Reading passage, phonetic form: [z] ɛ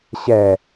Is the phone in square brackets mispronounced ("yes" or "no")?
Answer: yes